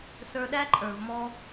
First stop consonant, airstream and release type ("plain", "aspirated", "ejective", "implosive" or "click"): implosive